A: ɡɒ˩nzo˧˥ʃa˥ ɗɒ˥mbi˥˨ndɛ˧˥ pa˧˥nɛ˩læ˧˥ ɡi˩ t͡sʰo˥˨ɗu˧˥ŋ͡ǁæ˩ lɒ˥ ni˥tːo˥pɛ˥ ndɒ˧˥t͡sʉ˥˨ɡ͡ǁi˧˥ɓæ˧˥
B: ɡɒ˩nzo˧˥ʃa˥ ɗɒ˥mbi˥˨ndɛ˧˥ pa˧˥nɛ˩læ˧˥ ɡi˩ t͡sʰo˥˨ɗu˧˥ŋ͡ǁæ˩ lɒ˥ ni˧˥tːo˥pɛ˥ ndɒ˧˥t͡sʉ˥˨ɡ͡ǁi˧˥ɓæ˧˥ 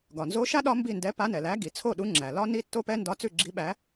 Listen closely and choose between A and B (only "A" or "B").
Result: A